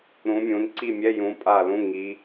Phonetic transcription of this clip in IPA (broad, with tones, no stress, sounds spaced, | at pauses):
ɾ ũ˨˦ mʲ ũ˨˦ n ǀ i˦˨ mʲ ɛ˧˥˧ j ũ˨˦ pʼ a˦˨ l ũ˧˥˧ ŋ i˨˦